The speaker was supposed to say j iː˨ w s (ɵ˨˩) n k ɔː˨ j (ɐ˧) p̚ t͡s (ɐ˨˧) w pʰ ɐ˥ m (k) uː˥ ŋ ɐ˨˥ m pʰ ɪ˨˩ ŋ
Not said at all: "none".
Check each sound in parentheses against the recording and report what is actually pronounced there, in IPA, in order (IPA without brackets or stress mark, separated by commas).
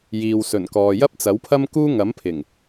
ɵ˨˩, ɐ˥, ɐ˨˥, k